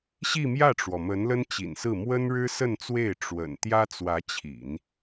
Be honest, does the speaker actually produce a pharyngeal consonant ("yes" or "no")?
no